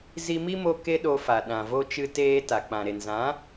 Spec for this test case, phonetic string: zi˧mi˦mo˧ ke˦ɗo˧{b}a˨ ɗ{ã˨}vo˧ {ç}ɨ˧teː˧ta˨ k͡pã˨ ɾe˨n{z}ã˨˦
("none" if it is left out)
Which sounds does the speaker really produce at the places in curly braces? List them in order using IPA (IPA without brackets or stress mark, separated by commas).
f, ã˨, t͡ʃ, z